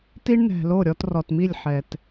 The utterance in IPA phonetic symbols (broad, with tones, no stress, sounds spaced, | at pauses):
t i˦ ɳ n ɛ̤˨ l o˦˨ ɾʲ ɔ˧ t r ɔ˨ t m i˦˨ lʲ ħ ɛ˨ t